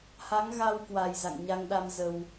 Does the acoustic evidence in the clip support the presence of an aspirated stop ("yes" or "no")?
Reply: no